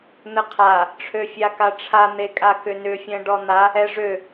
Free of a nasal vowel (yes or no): no